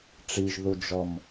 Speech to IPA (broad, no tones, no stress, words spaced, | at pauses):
ʈ͡ʂiʒðud͡ʒɔm